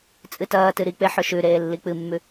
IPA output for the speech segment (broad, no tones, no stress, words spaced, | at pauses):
t͡sʼɨtɐːtɨ ɾik͡pe ħɵʃʉɾeː lːik͡pɨmːʉ